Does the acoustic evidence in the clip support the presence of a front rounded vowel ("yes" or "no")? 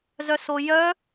yes